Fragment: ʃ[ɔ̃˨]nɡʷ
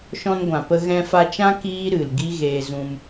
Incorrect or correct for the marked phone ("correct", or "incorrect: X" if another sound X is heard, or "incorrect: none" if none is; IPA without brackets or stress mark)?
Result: incorrect: ɔ̃˧